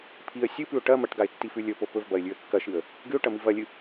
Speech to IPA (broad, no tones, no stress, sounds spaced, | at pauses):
pʰ i ə̯ sʲ ɨ p ʉ ʊ̯ ʈ ɐ m ɐ ʈ ɡ a ɪ̯ tː i f ʉ lʲ ɵ p o p ɵ v b ɐ ɪ̯ lʲ ʉ ə̯ kː ɐ ʃ ɨ ə̯ | ɡ ɨ ʊ̯ ʈ ɐ m i v ɐ lʲ ɨ